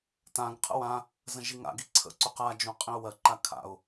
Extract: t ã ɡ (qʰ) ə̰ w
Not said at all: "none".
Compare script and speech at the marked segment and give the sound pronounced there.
qʰ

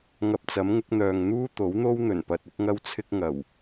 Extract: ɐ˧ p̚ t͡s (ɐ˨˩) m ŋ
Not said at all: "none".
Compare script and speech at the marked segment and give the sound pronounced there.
ɐ˨˥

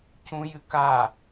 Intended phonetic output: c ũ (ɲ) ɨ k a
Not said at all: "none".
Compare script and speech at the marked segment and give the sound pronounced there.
j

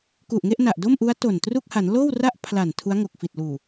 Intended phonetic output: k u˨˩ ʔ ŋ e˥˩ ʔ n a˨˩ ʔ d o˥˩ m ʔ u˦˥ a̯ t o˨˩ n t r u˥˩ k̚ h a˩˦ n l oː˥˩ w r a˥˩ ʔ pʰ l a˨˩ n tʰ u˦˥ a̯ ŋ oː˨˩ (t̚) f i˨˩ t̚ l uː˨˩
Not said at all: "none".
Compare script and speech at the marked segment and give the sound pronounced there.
k̚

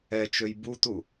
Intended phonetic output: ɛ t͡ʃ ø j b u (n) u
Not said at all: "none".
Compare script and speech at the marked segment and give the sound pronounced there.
t̪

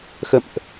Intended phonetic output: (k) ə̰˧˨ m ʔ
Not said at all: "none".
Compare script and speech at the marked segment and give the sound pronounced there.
x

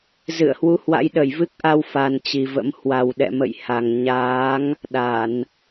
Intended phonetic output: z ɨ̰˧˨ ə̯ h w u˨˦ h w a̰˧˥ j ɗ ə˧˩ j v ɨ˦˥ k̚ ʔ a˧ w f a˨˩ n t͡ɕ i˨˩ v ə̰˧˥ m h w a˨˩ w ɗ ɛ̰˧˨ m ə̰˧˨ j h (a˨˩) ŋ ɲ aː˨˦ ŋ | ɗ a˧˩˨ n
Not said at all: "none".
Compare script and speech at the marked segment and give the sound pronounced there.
a˨˩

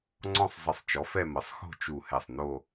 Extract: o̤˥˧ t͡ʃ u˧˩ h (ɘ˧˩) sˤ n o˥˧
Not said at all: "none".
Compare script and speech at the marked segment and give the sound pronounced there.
ɛ˧˩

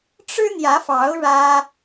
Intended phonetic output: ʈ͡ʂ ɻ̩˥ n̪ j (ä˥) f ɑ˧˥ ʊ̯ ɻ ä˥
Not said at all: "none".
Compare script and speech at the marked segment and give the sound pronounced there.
ä˧˥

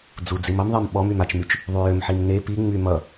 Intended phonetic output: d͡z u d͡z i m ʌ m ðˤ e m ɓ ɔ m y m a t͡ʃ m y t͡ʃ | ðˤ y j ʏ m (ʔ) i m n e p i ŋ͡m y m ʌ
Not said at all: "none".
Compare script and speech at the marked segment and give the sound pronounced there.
ħ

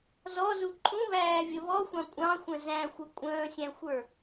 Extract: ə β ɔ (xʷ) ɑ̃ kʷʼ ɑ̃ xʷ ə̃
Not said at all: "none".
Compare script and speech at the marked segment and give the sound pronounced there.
xʷ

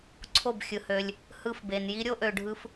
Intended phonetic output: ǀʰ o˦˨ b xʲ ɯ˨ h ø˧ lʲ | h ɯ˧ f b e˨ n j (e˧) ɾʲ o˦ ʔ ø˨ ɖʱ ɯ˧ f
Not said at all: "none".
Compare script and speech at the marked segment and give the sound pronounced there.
i˧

